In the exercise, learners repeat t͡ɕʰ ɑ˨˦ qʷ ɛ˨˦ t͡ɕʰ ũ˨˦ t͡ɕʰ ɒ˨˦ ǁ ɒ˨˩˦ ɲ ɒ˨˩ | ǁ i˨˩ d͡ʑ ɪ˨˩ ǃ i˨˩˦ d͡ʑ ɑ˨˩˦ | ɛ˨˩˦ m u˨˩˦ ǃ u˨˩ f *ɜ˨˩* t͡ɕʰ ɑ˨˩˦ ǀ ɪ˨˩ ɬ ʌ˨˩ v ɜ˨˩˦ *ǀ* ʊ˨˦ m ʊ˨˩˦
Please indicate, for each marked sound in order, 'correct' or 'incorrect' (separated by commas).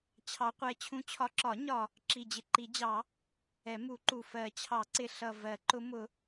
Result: incorrect, incorrect